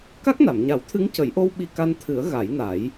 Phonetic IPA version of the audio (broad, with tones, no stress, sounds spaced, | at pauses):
k a˦˥ k̚ n a˨˩˨ m ɲ a˨˩˦ w t̪ʰ ɨ˧˥ ŋ c ə˨˩˦ j ʔ o˧ w ɓ i˧ k a˧ n t̪ʰ ɨ˨˩˦ ə̯ ɣ a˨˩˦ j n a˨˩˦ j